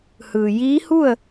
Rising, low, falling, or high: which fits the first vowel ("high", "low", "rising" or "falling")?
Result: low